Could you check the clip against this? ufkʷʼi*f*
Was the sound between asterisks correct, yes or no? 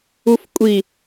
no